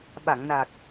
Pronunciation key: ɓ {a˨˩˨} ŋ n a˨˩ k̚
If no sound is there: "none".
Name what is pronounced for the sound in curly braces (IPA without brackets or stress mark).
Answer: a˨˩˨